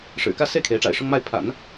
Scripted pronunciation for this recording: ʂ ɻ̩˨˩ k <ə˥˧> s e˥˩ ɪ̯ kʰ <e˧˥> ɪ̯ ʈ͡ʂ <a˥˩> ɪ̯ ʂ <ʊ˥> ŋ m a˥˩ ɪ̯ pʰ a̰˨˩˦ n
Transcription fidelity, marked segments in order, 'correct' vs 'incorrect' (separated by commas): incorrect, correct, incorrect, correct